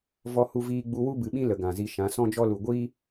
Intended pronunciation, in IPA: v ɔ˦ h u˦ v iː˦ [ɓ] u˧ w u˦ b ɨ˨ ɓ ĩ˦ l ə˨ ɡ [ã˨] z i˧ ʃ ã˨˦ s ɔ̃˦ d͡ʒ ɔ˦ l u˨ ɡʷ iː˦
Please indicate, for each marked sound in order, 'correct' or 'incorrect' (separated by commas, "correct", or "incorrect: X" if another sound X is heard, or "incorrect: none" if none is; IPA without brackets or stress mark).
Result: incorrect: ɡ͡b, correct